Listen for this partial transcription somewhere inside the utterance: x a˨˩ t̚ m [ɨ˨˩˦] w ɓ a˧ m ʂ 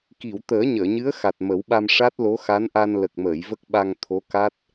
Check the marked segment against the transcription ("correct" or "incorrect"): incorrect